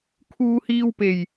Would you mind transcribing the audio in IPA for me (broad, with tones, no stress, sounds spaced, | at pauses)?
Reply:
kʰ uː˧ h iː˧ w p e˨˩ j